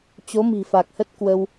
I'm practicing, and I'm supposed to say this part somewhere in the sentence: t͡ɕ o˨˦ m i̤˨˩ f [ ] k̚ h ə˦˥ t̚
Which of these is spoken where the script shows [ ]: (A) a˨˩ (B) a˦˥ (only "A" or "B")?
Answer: A